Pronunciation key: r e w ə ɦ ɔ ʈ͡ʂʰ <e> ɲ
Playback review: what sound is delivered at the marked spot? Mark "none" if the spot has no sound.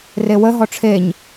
e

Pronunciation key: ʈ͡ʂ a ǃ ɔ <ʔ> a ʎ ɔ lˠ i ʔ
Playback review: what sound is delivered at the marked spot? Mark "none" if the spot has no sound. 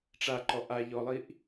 ʔ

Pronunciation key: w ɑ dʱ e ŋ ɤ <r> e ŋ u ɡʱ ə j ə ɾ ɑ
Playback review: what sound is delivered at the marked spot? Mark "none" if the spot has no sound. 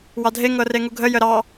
r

